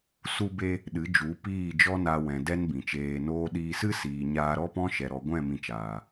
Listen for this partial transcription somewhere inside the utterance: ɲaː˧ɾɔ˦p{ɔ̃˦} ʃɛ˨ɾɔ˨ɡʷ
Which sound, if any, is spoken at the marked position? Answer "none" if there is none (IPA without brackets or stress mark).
ɔ̃˦